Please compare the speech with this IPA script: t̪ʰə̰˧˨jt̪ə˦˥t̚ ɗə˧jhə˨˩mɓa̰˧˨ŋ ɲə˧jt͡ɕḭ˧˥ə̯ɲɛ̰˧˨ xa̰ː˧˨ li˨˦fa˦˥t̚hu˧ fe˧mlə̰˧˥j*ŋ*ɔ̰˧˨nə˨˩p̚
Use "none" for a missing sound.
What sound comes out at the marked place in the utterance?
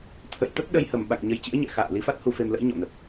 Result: ɲ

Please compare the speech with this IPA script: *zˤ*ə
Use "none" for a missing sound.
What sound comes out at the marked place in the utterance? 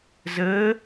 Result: z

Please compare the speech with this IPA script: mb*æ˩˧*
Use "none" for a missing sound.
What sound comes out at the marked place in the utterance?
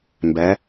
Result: æ˩˧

